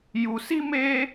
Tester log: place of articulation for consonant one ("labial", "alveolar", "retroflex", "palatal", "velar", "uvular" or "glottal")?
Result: palatal